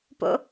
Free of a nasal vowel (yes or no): yes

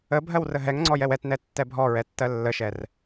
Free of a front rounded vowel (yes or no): yes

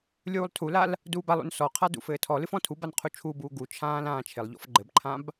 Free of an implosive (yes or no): yes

